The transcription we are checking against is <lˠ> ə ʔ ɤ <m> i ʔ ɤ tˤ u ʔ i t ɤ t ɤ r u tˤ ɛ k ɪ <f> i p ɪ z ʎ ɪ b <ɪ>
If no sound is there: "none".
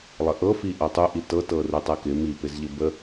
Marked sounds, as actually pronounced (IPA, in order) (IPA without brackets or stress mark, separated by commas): lˠ, f, m, ə